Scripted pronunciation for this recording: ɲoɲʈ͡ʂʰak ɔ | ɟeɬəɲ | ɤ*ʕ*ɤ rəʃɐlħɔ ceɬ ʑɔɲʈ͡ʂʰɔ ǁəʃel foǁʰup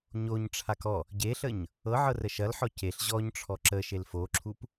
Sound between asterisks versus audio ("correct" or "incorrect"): correct